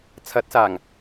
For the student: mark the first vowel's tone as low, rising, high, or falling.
rising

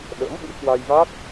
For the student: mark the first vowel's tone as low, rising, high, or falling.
rising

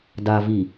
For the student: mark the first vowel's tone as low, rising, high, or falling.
low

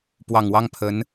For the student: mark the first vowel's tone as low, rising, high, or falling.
low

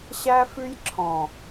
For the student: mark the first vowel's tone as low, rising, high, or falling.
high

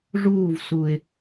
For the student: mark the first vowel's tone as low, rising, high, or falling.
falling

